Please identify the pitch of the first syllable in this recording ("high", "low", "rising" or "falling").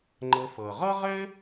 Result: low